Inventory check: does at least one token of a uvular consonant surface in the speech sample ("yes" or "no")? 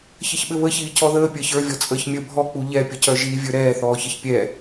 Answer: no